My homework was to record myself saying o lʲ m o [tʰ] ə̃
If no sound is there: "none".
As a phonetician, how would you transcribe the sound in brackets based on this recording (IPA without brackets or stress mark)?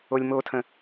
tʰ